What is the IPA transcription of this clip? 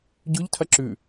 ɟ ʉ ʎ tʰ ɐ ǁ ʉ

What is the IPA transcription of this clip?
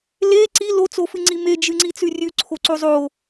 l e ǀ i l o t͡s o f ɨ ŋ͡ǀ i m e d͡ʒ ɨ ŋ͡ǀ i t͡s ʉ rʲ ʉ ǀʰ o ǀ o zˤ o

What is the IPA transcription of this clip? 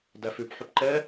d æ f ʉ p ħ ʉ p ǃ ɛ

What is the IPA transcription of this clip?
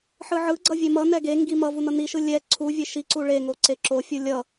ħ ɯ ʕ ɯ ɡ͡ǀ ʌ vʲ e m ʌ n ɛ ɡ e ŋ ɡ i m ʌ v u n ʌ n i ʃ ɯ lʲ ɛ ǀʰ u vʲ e ʃ i ǀ u ɭ e ŋ o ǀ e ǁ o fʲ u lʲ ʌ

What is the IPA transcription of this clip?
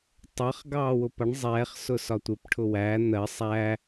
tˤ ɜ χ ɡ ɑː w ʊ p ʌ ɳ zˤ ɛ χ s ʊ s ɒ tʷ ɪ p ʈʰ ʊ w æ n̪ ɜ sˤ æ

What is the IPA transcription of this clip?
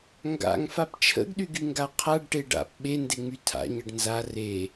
ŋ ɡ a̰ ŋ f a p t͡ʃʰ ə̰ ɡ ɗ y ɡ y ŋ ɡ a qʰ a ɖ ʈ e ɖ a̰ p ɓ e n d e ŋ͡m y tʰ a̰ ɲ ə ɖ n z a r e

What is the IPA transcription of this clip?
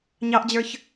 ɲ ɑ ʔ d͡ʑ ə˞ ç

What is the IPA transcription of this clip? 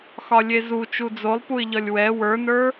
x ɒ lʲ e z u t͡ʃ u d͡z o lˠ p u ɪ̯ ʎ ɒ lʲ w ɛ w ə˞ n ə˞

